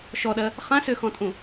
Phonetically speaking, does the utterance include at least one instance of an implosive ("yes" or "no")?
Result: yes